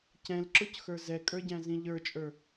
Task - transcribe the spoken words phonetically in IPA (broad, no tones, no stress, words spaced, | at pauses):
cɛ̃lǁʊc xə˞zɛkʼə˞ɟæ̃ zĩʎə˞t͡ʃʼə˞